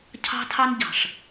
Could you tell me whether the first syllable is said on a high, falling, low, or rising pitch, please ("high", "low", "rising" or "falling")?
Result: high